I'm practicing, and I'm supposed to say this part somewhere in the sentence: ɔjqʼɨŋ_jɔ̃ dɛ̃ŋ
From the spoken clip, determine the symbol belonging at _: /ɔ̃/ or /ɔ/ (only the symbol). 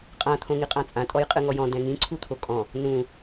ɔ